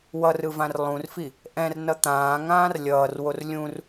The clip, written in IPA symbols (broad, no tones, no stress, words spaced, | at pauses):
wʌrɯvãr lˠũrfi | ʔɛ̃rnʌ t̪ãːŋãːr lʲʌːrwor lʲũr